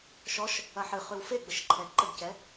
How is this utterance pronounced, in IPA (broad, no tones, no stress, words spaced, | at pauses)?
ʃɔʃ | ɐħɨχʉw feɡ͡bəʃǃʰɛ ǃəɡcɛ